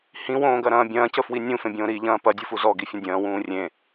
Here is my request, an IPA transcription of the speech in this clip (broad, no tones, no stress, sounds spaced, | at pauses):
h ĩ w õː ɡ ɐ ɾ ɐ̃ː bʲ ɐ̃ː c ə f w i nʲ ũ f ẽ bʲ õː ɾ i ʎ ɐ̃ː p ɐ dʲ u f u z ɔ ɡ i fʲ ə̃ dʲ ɐ̃ː w ũː rʲ ẽ